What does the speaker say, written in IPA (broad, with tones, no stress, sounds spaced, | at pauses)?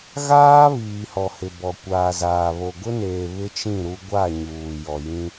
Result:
ɣ aː˦ β iː˨ h ɔ˨ h ɪ˨ b ɔ˨ kʷ aː˨ z aː˨ β o˨ ɡ ʊ˦ n eː˨ β ɪ˦ t͡ʃ ĩ˦˨ ɾ u˦ ɡʷ a˦˨ ɲ uː˨ j ɔ˨ j ĩ˦